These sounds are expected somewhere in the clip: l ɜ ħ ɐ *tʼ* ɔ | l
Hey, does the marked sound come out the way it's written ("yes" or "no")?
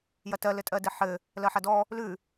no